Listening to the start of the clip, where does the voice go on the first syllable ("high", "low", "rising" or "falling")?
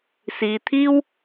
low